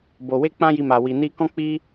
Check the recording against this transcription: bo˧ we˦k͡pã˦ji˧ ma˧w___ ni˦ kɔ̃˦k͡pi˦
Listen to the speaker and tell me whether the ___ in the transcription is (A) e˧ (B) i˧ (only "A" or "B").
B